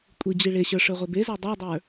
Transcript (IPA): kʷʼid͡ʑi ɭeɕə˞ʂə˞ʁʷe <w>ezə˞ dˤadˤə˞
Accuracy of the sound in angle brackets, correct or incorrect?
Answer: incorrect: b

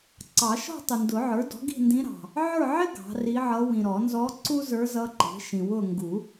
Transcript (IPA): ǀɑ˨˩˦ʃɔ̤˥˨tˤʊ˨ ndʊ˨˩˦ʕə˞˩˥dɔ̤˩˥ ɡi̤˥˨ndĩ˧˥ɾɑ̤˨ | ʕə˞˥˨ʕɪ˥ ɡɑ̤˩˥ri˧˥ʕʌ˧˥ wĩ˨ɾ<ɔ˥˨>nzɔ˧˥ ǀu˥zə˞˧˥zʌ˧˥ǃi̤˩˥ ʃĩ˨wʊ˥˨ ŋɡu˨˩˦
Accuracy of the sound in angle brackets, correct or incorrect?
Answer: incorrect: ɔ˨˩˦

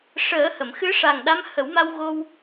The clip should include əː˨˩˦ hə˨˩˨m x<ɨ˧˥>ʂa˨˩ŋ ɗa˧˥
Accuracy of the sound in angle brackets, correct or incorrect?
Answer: correct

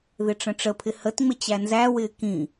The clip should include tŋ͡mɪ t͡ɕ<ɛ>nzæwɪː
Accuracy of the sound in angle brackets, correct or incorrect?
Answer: incorrect: æ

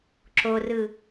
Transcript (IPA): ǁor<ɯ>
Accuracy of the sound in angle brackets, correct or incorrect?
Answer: correct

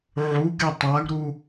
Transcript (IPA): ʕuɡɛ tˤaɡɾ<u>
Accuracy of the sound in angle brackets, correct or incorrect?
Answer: correct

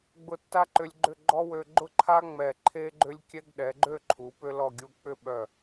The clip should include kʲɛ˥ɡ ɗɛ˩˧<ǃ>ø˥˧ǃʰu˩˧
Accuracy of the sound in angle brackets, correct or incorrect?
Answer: incorrect: ɡ͡ǃ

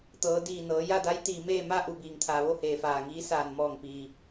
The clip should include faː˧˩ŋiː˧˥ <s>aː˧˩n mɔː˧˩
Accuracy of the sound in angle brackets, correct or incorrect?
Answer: correct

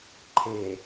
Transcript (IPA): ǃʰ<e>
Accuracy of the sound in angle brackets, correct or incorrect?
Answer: correct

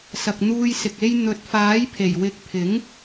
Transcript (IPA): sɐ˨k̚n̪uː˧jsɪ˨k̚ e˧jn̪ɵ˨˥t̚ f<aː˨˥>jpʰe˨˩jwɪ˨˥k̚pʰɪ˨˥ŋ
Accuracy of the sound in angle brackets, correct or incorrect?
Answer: correct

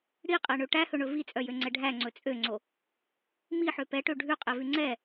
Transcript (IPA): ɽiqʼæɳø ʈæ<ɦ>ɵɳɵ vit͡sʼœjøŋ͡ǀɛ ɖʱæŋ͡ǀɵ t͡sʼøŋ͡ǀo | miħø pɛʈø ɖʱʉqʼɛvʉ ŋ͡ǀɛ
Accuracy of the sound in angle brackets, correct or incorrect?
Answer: incorrect: h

